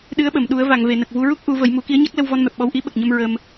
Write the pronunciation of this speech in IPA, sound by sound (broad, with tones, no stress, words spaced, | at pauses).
ɗɨ˧˥ə̯ɓə˨˩˨m ɗu˨˩˦ə̯va˨˩˨ŋve˨˩˨ nə˨˩k̚vu˧ɹu˦˥k̚ ʔu˨˩˦ və˨˩˦jmu˨˩˦ ki˧˥ə̯ɲa˦˥k̚lə˧w vɔ˧nmɛ˨˩p̚ɓɔ˧wʔi˧˥ ɓə˨˩k̚ɲə˧m ɹə˧m